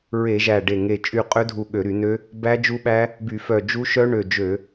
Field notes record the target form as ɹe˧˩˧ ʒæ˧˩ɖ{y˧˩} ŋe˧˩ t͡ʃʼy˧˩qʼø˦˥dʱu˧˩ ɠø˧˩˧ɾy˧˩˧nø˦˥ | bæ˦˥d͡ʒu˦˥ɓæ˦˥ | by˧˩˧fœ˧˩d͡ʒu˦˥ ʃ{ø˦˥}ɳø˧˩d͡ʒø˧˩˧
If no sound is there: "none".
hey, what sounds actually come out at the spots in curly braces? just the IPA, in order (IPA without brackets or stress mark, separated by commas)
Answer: e˧˩, œ˦˥